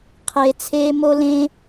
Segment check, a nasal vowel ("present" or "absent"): present